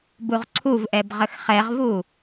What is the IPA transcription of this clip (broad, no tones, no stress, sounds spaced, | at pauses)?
b u ʁ ǀʰ u v ʔ ɛ b ʁ ə x χ ɛ ʁ v u